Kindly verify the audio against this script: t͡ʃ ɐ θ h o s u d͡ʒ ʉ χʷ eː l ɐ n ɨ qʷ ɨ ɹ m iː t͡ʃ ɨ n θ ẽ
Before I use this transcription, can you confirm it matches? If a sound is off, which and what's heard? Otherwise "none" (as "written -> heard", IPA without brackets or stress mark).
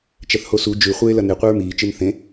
none